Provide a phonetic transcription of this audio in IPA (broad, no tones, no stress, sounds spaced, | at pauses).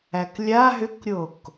æ k lʲ a ɦ ʏ k ɾʲ o k